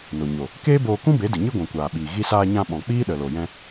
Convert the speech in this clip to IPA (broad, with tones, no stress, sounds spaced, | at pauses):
n o˨ ɲ o˨ | k eː˦ b oː˧ k ũ˦ b e˨˦ d ɨ˨ ɲ ɨ˦ ɡʷ ũ˨ kʷ aː˨ ɓ iː˨ ɣ i˧ s aː˧ ɲ ã˧ ɓ ɔ̃˨ k͡p iː˦ ɗ ə˨ l o˨ j ɛ̃˧